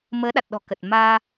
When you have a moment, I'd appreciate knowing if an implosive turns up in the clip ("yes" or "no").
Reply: yes